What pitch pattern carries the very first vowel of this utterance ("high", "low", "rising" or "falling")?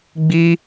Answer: high